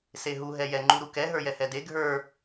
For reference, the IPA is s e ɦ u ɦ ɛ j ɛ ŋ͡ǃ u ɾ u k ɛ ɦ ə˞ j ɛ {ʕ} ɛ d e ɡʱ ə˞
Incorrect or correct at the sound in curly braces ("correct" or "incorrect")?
incorrect